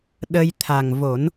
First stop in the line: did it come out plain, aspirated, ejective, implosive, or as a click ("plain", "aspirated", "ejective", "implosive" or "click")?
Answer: implosive